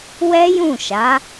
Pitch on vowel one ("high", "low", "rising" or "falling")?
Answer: high